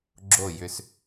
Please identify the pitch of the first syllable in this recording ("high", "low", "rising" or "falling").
falling